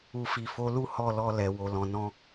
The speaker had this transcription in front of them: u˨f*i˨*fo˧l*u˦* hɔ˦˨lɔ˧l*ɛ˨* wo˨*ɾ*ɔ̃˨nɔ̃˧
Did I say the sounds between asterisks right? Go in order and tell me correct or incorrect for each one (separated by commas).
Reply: correct, correct, correct, incorrect